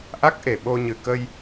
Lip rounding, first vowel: unrounded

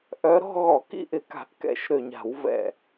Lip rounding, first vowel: rounded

